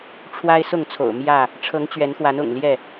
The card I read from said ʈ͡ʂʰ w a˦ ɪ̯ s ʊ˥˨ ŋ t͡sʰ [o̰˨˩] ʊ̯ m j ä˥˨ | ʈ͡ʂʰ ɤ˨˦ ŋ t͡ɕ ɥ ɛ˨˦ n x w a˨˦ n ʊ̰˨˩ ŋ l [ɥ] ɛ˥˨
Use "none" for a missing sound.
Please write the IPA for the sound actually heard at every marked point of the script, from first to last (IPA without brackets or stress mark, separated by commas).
o̰˨˩, j